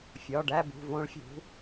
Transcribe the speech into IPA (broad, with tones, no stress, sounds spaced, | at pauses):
fʲ ɒ˩˧˩ ɖ æ˥˧ b ṳ˩˧˩ v õ˦˥ ɭ fʲ ṳ˩˥